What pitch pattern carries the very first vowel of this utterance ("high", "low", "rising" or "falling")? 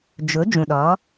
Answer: rising